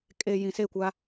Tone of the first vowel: low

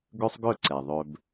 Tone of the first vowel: high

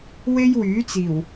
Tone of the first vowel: high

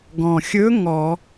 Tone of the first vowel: low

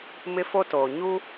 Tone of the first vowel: high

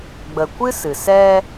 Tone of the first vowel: low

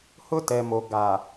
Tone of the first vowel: high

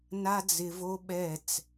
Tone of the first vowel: high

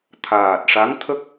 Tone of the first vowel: low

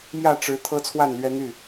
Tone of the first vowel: falling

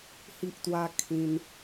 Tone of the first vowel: high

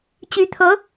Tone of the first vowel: rising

